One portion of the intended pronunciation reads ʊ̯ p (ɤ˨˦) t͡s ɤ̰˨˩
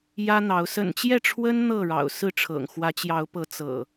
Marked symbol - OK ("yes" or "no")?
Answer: yes